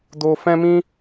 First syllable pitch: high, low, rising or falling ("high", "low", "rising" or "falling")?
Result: high